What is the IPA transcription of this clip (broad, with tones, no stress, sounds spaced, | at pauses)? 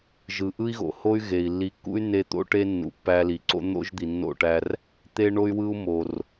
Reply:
ʒ ɯ˨ ʔ ɯ˦ i̯ ɣ o̰˨ h o˦ y̯ ɣ e˨ i̯ lː i˨˦ kː ṵ˦ y̯ nː e˧ t̪ o̰˦ ʈ e˦ nː ṵ˨ pː æ˧ l i˨ ǀ o̰˦ n̪ o̰˦ ʒ d̪ i˨ nː o̰˦˨ ʈ æ˧ r | t̪ e˦ ɳ o˦ y̯ w ɯ˦ u̯ m o˨ r